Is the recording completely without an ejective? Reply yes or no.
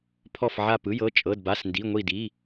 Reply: no